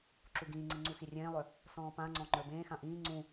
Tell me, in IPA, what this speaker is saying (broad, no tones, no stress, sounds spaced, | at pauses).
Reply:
ǁ u ɡ ĩː ŋ͡ǀ i ŋ͡ǀ u x i rʲ ẽː lˠ œ | s ɔ̃ː p ã ŋ͡ǀ ɔ̃ ŋ͡ǃ ə˞ b ẽː x ã ʔ ĩː ŋ͡ǀ ũ